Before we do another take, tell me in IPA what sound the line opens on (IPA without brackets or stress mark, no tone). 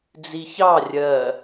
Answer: d͡z